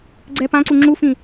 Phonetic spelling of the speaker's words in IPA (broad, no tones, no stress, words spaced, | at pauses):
ɡ͡ǀɛ pãǀu ŋ͡ǁufĩ